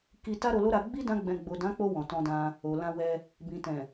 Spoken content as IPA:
k i˧ t a˦ ɾ o˧ l o˦ ɾ a˧ ɡ͡b i˦ d ã˦ ɡ͡b ɛ̃˧ ɡ͡b o˨ d ã˨˦ k͡p o˧ w ɔ̃˨ t ɔ̃˧ d ã˧ | o˨ l ã˧ w ɛ˧ | b ĩ˨ t ɛ̃˨

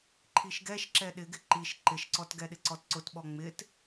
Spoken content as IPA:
ǃʰ i ʃ ɡ ɛ ʃ ǁ ɛ ɗ ɪ ɡ ɪ ǃ i ʃ ǃ ɪ ʃ ǀ ɔ t ɡ ɛ ɗ ɪ ǀ ɔ t ǀ ʊ t ɓ ɔ ŋ͡m ɪ t

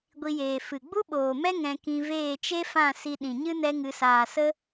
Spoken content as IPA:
ɡʷ i˧ j eː˨ f ɨ˨ ɡ͡b u˦ ɓ oː˨ m ɛ˦ ŋ ɛ̃˧ k ĩ˧ v eː˦˨ t͡ʃ e˦ f ã˦˨ s i˧ ɗ ĩ˨ ɲ ɨ˦ n ɛ˦ ŋ ɨ˧ s aː˨ s ə˦

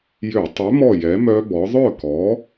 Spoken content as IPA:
j ø˧˩˧ tˤ ø˨˥ m ɔ˥˨ j ɛ˨˥ m œ˦˥ b ɔ˨˥ ðˤ œ˥˨ k ɔ˨˥

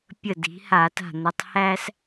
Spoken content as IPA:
pʲ ə˧˩ d i̤˩˧ h a˧˩˧ t a̤˧˩ n̪ ə˩˧ tˤ h æ˦ s

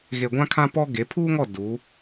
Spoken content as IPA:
ɣ e˨ ɡʷ ã˦ kʰ ã˦ p ɔ˦ ɡ e˨˦ pʰ uː˦ ŋ ɔ˦˨ d u˨˦

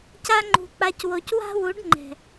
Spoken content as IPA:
c a˧ ŋ͡ǃ ṳ˨ k͡p a˨ c w o˨ c w a̤˦ w u˨˦ ɖ ŋ͡ǃ ɛ̤˨

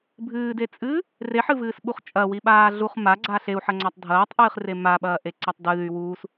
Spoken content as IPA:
bʱ ɨː d e t͡sʼ ɨː | r e ħ ɨ v ɨː s ɓ u χ t͡ʃʼ ɐ w i ɓ aː ɮ u χ m a ɡ͡ǀ a ɬ e u̯ ħ ɐ ŋ͡ǀ a tˤ dʱ ɐː tˤ ʔ ɨː χ r e m a ɓ ɐː ʔ e ǀ ɐ tˤ d ɨː y̯ w uː s

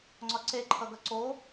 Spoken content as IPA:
ŋ͡ǀ ɒ ǀ e ǃʰ ʌ ɡ ʌ ǀ o

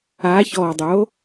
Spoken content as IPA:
a ç ɔː dˤ o

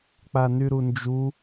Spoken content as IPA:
k͡p a n y ɾ u n d͡ʒ u

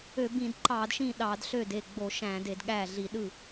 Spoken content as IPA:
ø˧˩˧ b ĩ˧˩˧ d ǃ ɑ˧˩˧ d ʃ ĩ˥˩ ɗ ɑ˧˩˧ d ɬ ø˥˩ d e˥˩ ɡ͡b o˧˩˧ ʃ æ̃˧˩˧ d e˧˩˧ d ɠ æ˥˩ ɮ i˧˩˧ ɗ ɯ˥˩

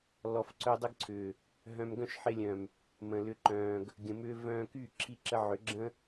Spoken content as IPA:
l ɔ˨ f ǀ œ˧ dˤ ə˦ ɡ ǀʰ ʏː˨ | ɦ œ̃˧ m ɡ œ̃˦ ʃ ħ ɪ˧ lʲ œ̃˨ m | m ə̃˨ l ʏ˧ ǃ œ̃ː˨ ɡ | ɡʲ ə̃˨ m ʏː˧ v œ̃ː˧ k y˦˨ ǁʰ i˦ ǁ ə˦ ʕ ʏ˨˦ ɡ͡ǁ ə̃˦

